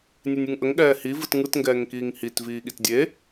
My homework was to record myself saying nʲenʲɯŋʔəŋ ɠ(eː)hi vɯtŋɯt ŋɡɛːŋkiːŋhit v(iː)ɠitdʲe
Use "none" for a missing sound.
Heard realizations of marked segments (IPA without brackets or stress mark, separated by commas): ɛː, iː